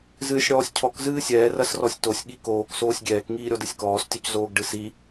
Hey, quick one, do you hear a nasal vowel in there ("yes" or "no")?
no